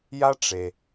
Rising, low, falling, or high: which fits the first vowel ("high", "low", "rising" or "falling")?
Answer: high